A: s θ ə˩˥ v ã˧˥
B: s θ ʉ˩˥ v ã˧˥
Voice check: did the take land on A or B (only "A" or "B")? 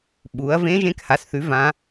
B